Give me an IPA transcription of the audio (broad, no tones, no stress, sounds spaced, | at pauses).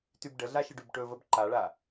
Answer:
t y b ɖ ə ɮ a ʃ ə ɖ y b ʈ ɵ v ə b ǃ a ɭ a